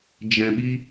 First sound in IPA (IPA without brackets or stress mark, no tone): d͡ʒ